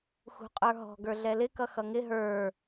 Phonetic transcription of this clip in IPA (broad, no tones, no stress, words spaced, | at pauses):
xṳqʼə˞ɦɔ̤ ɡə˞ɮɛlɪ kʌxʌŋɪ ɦə˞